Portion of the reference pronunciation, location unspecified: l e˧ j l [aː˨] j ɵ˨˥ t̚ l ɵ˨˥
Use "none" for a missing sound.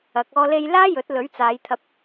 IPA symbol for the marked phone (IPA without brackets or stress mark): aː˥